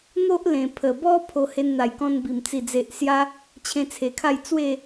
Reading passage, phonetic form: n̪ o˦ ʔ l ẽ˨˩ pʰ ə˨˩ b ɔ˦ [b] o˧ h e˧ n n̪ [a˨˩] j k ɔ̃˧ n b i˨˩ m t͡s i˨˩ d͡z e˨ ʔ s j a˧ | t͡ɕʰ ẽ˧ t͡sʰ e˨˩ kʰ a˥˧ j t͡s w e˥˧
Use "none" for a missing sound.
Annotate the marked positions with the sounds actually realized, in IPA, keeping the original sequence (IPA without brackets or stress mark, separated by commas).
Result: pʰ, a˨˩